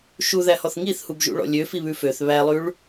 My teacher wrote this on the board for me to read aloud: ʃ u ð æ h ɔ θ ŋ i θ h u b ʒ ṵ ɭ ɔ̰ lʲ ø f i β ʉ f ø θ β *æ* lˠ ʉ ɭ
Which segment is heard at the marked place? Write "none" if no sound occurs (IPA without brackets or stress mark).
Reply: æ